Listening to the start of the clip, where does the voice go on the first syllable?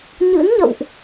rising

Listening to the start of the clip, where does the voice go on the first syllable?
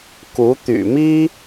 rising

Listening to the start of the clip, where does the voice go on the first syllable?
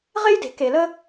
high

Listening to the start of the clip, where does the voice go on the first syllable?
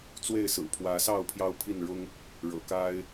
falling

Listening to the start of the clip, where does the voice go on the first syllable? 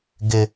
high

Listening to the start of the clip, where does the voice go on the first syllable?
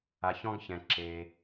low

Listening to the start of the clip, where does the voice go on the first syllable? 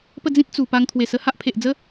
falling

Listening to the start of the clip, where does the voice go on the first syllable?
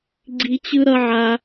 high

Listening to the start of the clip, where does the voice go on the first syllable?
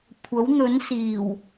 rising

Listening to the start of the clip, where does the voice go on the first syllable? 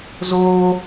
high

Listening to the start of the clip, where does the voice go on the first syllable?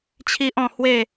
high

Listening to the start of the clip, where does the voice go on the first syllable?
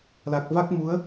low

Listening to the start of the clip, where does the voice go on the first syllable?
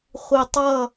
low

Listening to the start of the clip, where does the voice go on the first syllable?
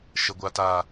low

